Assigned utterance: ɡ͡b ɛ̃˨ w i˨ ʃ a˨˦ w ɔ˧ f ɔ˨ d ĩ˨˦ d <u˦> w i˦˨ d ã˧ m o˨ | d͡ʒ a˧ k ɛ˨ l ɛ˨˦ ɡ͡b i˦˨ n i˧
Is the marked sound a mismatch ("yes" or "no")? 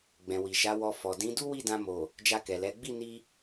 no